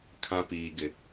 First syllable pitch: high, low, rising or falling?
high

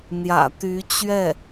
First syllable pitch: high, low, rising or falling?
low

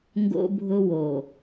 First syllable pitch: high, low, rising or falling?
high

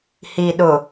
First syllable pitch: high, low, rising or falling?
low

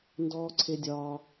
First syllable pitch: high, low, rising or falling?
low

